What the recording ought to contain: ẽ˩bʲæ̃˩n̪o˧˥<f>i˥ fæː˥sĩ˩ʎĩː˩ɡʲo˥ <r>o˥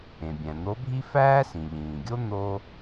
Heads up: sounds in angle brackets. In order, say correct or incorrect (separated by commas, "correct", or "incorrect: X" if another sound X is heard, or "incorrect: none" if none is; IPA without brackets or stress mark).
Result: incorrect: bʱ, incorrect: n̪